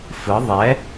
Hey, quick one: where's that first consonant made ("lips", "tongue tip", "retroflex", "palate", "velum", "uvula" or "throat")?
lips